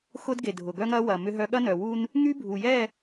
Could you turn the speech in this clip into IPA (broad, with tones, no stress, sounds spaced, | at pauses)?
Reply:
x ʊ˦ d ɡ e˨ dʱ ʊ˨ ɡ œ˦ ŋ ɐ˦ w ɐ˨ m ʏ˦ ɦ œ˦ ɠ ɐ˦ n œ˨ w u˦ n | ŋ y˦ bʱ u˨ j ɛ˦˨